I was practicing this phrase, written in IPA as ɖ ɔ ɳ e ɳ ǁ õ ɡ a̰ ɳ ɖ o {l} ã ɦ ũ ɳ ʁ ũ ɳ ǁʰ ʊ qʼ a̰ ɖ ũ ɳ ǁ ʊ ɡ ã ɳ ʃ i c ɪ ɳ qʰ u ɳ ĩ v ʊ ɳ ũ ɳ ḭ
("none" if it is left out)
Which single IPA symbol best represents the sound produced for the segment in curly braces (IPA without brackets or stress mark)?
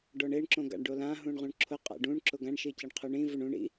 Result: l